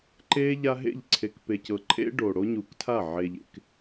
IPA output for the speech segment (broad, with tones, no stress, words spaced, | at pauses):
ǃeː˦ ʎa˦ ɦḛ˦˨ʎǀʰe˨k pe˨cɤ˨ǃʰḛ˦ ɖoː˨ɽo˦ɲuː˨ktʰa˦˨ ʕe˨ʎḛ˨k